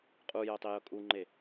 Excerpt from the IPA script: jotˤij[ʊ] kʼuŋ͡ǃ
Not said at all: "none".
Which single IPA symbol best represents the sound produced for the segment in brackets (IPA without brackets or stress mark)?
ʊ